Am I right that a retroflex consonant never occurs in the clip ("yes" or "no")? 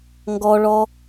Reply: no